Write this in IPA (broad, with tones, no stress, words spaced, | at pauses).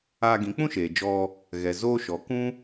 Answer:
aː˧ɡĩ˨˦k͡pũ˦ʃeː˨ d͡ʒɔ˧ | ɣɛ˨zoː˦ʃɔ˨˦ kũ˦